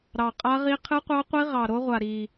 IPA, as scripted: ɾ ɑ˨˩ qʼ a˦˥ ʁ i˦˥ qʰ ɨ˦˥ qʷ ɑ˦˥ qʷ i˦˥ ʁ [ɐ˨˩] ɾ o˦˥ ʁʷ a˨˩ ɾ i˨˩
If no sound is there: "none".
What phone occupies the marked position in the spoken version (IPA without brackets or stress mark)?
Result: ɑ˨˩